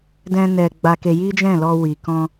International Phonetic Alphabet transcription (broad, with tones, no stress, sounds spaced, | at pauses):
d ɛ̃˦ n ɛ˧ ɡ͡b a˧ k e˧ j i˦ d͡ʒ ɛ̃˦˨ l ɔ˧ w i˨ k ɔ̃˧